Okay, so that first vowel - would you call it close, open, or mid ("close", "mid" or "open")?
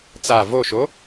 open